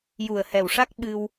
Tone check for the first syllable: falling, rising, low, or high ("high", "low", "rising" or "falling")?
low